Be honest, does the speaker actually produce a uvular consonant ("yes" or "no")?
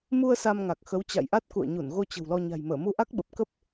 no